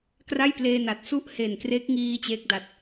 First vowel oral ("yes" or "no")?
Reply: yes